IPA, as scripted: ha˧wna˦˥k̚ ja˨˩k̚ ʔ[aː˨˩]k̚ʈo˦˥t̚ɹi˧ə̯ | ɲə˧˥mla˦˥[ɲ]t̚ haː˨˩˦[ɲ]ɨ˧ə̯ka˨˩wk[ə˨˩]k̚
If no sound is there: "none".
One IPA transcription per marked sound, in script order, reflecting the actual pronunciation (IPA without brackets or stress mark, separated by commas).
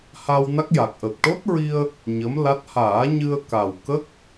əː˨˩, none, ɲ, ə˦˥